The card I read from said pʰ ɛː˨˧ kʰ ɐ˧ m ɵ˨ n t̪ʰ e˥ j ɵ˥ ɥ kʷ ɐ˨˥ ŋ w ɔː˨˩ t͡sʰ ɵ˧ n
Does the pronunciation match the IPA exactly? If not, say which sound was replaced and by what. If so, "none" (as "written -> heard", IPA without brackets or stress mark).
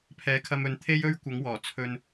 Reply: none